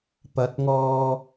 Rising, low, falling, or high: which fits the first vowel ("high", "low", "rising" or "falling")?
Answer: rising